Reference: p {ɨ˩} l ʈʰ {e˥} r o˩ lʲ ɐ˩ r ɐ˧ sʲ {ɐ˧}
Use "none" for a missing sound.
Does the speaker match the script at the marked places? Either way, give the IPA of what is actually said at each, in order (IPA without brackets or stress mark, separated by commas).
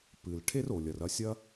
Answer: ɨ˩, e˥, ɐ˥